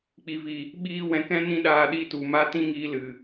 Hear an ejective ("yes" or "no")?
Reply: no